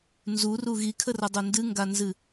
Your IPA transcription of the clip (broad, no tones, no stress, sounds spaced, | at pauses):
n z u r u ɣ i kʰ ə r ʌ dˤ o n d ɨ ŋ ɡ a n z ɨ